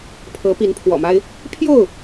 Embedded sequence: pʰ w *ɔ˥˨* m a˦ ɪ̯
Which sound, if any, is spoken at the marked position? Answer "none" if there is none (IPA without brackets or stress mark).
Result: ɔ̰˨˩